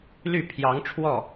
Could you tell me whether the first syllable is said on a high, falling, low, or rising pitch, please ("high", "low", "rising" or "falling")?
falling